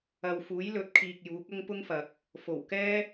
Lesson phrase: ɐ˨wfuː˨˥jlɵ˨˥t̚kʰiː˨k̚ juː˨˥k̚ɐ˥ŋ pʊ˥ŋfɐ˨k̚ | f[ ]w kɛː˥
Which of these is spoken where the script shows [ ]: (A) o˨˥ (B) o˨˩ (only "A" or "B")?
B